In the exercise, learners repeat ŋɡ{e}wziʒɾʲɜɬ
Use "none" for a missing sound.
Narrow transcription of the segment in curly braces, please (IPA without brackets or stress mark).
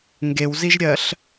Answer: e